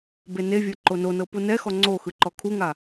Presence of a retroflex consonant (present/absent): absent